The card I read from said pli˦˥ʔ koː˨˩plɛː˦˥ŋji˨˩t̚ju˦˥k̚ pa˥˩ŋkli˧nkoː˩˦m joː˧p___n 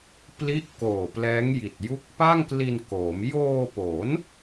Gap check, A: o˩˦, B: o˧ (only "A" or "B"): A